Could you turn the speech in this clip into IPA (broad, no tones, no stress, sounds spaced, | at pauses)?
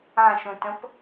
ã ʃ ũ t ə̃ p